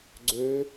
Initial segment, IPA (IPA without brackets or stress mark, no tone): ɡ͡ǀ